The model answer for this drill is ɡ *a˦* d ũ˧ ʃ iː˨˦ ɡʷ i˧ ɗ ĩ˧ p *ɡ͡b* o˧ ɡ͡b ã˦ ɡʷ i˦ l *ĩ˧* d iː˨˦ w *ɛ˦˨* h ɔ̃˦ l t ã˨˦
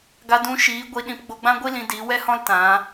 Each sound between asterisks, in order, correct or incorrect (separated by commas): incorrect, correct, correct, incorrect